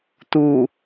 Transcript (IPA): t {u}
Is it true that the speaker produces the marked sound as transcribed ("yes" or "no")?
yes